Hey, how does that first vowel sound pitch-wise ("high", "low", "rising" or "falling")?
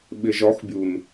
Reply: low